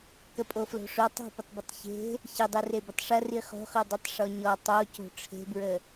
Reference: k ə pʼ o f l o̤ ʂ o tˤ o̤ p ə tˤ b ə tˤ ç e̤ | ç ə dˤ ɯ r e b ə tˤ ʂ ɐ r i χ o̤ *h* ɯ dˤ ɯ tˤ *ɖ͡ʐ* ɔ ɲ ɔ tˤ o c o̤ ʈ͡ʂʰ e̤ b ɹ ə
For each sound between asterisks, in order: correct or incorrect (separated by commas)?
incorrect, incorrect